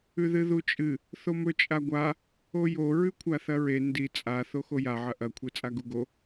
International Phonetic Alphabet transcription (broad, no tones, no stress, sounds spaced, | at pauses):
ʉ ð ɨ ð u t͡ʃʼ ɨ | θ o m ɵ t͡ʃʼ a ɡʷ a | o j o ɹ ʉ kʷʰ a θ ɐ ɹ e n d i t͡sʼ a θ o x o j a ʕ ɐ ʔ ɐ kʷʰ e t͡sʼ a ɡ u ɡ o